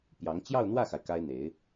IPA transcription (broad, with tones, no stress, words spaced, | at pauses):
pjɑ˧˥ŋ t͡ɕjɑ˥˧ʊ̯ n̪wä˥˩xa˩ɪ̯ ka˥ɪ̯ n̪e˧˥ɪ̯